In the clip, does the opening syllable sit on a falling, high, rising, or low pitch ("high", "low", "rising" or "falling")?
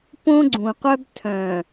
high